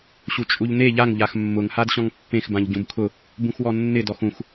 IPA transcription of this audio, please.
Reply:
ɕ u t͡ʃʼ u ʎ n e ʎ a ŋ ʎ a x mː ʊ ŋ h a d ɕ ɔ̃ ŋ pː ẽ x b ã ʎ ɟ ũ b kʰ ʊ | b ũ x w ɔ nː ɪ d ɔ x ũ x

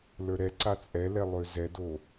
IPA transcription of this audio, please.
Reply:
l ə˞ ɾ ɛ ǀ a t͡sʼ ɛ l ɛ lˠ ø z ɛ d o

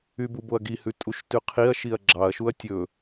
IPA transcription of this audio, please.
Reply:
y b u b o ɐ̯ ɡ i h ʉ tʼ u ʃ t ʉ qʰ i ɐ̯ ʃ i ɐ̯ ɡ͡ǁ ɑ ɐ̯ ʃ u ɐ̯ tʲ ɵ

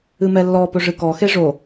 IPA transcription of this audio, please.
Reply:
ɨ m ɛ lː ɔ p ɵ ʐ ɨ k ɔ x e ʐ o

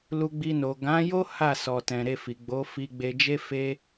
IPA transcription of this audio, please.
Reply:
l u˧ ɡ͡b i˧ n o˨ ɡ ã˨˦ j o˦ h a˦˨ s ɔ˨ t ɛ̃˨ ɾ e˧ f i˨ ɡ͡b o˨˦ f i˧ ɡ͡b e˧ d͡ʒ e˦ f e˦

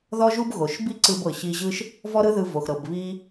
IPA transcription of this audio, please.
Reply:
ð ɔ˥ ʒ u˥ b ɣ o˩ ʃ b i˥ ǀ ɯ˧ b ɤ˩ ɕ i˧ ʑ ɯ˥ ʃ | v ɔ˥ ɾ ɯ˥ ð ɯ˧ v o˩ x ɾ ɤ˩ b β i˥

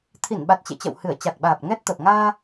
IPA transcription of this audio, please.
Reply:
t̪ʰ i˧˩ n ɓ a˨˩ t̚ t͡ɕ ḛ˧˨ t͡ɕ ə̰˧˨ w h ɨ˧˩ ə̯ t͡ɕ a˨˩ k̚ ɓ aː˨˩ p̚ ŋ ɛ˦˥ t̚ t̪ ə˨˩ p̚ ŋ aː˧

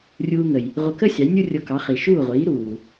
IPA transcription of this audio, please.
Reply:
rʲ uː˧ ŋ ə˩ j | ʁʷ ə˧ k ə˥ sʲ ɑ˩˥ j nʲ u˥ rʲ o˧ k ɑ˩˥ χ i˩ ʃ uː˥˩ ʁʷ iː˩˥ ɾ uː˩

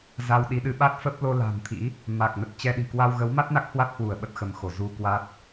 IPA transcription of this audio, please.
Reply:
z a˧ w ɗ i˨˦ ɗ ɨ˨˦ ɓ a˦˥ t̚ f ə˦˥ p̚ l o˧ l a̤˨˩ n t̪ʰ ḭ˧˥ | m a˨˩ k̚ n ə˨˩ t̚ t͡ɕ ɛ˧ ɗ i̤˨˩ k w a˧ w ɣ ə˨˦ w m a˦˥ t̚ n a˦˥ k̚ h w a˦˥ t̚ h w u˧˩ ə̯ ɓ ə˦˥ t̚ x ə˨˦ m x o˧˩ z u˧ k w a˦˥ t̚

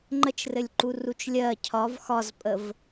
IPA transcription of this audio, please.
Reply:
ŋ͡ǃ ə t͡ʃ r ɘ lʲ ǃ u r u t͡ʃ lʲ ɜ cʰ ɒ v x ɒ z pʼ ə v

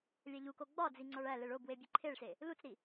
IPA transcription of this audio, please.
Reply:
lʲ æ ʎ u k o ɡ͡b ɒ d͡z i ŋ͡ǀ ɒ ɭ æ l e ɭ o b w e bʲ e ǃʰ e ɭ s e | l u t͡s ɾ i

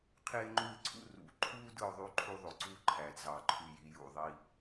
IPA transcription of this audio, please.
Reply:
qʰ eː˥ ŋ͡ǃ u˥˧ ɪ̯ ǀʰ ṵ˥ r ṵ˩˧ ǃʰ uː˥ d ɯ˥˧ ʊ̯ ðˤ y˥ ǃʰ u˥ ðˤ o˩˧ ǀ uː˥ ǃʰ æ˩˧ d z ɑ˩˧ ǃʰ y˧˩ j i˧ j ṵ˧˩ ðˤ i˥˧

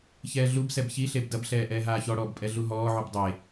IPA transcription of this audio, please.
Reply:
ç ɛː ɮ u b s ɛ b ç i ɬ e b d ɐ b ɬ ɛː ʔ ɛː ɦ aː ç ɔ ɽ ɔː b pʼ ɛ ɮ u ɦ ɔː ʕ u b dˤ e

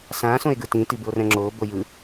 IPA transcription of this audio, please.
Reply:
s ã s õ e̯ ɡ ɯ t ĩ t i b ɯ o̯ r ɛ̃ ŋ͡ǁ oː b o j ɯ

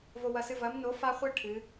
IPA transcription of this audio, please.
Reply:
v o˦ w ɐ˦ s ɨ˦ v ɐ˨˥ m n o˨˥ f a˦ χʷ ɨ˦ ʈʰ ɨ˨˥

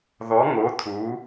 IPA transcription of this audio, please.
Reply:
ð ɔ˩˧ ŋ o˩˧ t̪ʰ u˩˧

